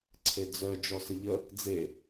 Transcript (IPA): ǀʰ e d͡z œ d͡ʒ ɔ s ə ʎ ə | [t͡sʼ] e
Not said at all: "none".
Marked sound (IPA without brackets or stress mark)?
d͡z